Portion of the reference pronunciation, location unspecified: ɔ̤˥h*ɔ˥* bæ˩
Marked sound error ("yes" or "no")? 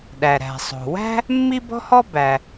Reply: no